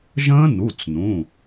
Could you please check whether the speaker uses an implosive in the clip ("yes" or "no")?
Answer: no